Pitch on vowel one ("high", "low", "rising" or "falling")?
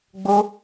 high